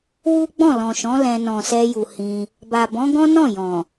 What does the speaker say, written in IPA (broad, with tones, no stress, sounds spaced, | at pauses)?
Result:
w u˦ ɡ͡b ɔ̃˦˨ l ɔ̃˨ ʃ ɔ̃˨˦ l ɛ̃˧ n ɔ̃˨ s ɛ˧ j u˨ h ĩ˧ | b a˨ b ɔ̃˨˦ ɡ ɔ̃˦ n ɔ̃˦˨ j ɔ̃˨